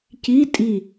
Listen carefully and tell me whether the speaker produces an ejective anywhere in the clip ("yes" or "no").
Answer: yes